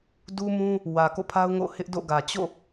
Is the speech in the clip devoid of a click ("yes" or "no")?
yes